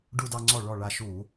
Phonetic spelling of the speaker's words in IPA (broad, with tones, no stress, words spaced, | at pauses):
ɖu˧dɑ˧ŋ͡ǀɔ˧˩ ɭɔ˧˩ ɭa˧ ʃu˧˩˧